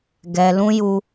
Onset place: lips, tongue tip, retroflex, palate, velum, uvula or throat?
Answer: velum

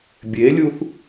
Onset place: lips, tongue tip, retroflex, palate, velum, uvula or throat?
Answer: lips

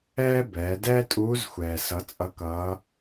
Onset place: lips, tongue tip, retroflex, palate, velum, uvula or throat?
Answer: lips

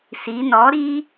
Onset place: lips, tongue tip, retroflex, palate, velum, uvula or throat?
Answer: tongue tip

